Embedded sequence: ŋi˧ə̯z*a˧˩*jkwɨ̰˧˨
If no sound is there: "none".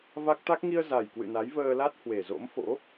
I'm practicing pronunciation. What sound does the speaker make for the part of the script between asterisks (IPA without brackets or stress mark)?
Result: a˨˩